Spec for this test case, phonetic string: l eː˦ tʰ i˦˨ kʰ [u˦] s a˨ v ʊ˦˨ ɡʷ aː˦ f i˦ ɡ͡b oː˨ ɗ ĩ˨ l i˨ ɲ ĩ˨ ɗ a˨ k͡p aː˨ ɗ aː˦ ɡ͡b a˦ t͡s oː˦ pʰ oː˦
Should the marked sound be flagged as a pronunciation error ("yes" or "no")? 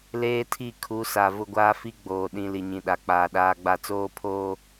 yes